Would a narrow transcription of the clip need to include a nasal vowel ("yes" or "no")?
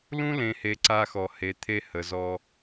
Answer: yes